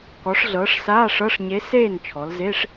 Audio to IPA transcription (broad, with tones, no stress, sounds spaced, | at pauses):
k ɔ˩˧ ʂ ɮ ɤː˩˧ ʂ s aː˧˥˧ ʂ ɤ˧˥˧ ʂ ɲ e˧˥ s eː˥˨ n t͡ʃʰ ɔ˩˧ l z e˧˥˧ ʂ